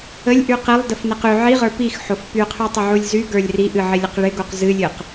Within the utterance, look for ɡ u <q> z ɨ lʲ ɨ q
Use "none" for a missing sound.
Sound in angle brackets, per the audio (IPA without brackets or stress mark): q